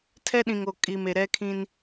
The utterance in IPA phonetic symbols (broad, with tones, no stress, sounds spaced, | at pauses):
tʰ ɛ˦ ɗ ĩ˨ ŋ o˨ kʼ i˨ m e˨ ɾ ɛ˦ kʰ ĩ˦ n